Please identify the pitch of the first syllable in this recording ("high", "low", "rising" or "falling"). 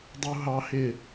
high